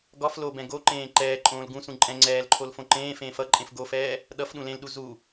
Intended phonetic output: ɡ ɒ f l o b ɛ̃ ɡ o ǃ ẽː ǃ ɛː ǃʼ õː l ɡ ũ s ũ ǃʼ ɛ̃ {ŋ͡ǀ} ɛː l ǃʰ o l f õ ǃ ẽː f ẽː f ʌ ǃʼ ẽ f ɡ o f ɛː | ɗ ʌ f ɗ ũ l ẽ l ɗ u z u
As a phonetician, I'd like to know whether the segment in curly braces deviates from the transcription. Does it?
no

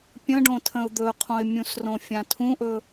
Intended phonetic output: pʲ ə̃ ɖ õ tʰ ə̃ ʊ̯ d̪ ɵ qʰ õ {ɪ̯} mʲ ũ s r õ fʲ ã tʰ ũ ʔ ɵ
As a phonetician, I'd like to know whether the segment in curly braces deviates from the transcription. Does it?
no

